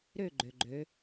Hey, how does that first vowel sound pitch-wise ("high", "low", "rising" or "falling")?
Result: falling